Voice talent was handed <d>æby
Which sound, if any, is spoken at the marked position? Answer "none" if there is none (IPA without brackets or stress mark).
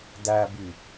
d